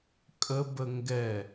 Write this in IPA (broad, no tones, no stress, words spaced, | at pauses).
kʼəbə ŋɡɛ